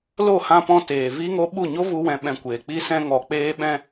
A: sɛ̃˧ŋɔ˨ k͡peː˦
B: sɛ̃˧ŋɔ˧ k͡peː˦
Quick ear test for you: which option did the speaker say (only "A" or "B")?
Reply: A